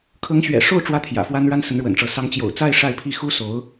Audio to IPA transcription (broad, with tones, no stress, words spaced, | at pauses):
kʰɤ˧˥ŋɕɥɛ̰˨˩ʂo˥˩ʊ̯ ʈ͡ʂwä˥t̪ʰjä̰˨˩fwa˥n ɻa˥nsə˧˥nɻwə̰˨˩nʈ͡ʂɤ˧˥ sɑ˧˥ŋt͡ɕjo̰˨˩ʊ̯t͡sa˥˧ɪ̯ ʂa˥˧ɪ̯pʰi˥˩ xu˥so˧˥ʊ̯